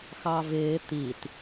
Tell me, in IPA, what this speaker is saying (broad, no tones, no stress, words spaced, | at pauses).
xɑvɪː t̪it